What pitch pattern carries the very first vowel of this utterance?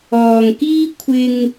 low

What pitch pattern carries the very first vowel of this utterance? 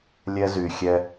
high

